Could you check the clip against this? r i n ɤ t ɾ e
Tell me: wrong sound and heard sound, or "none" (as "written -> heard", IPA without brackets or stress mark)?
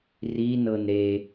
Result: t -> n